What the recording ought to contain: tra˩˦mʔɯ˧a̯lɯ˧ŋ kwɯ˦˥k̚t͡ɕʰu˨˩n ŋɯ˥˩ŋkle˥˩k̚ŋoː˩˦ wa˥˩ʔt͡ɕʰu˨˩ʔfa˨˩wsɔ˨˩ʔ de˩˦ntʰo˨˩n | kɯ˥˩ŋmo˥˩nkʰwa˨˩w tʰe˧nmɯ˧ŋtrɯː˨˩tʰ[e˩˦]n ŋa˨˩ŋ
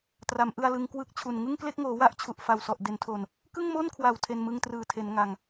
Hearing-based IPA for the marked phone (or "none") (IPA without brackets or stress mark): e˩˦